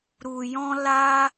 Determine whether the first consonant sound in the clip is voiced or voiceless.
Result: voiced